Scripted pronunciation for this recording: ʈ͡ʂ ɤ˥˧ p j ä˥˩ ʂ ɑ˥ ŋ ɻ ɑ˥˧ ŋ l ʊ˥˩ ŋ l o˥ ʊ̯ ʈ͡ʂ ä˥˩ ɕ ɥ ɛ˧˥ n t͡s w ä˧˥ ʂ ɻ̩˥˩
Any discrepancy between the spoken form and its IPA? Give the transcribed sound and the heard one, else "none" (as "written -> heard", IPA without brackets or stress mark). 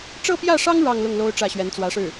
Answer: none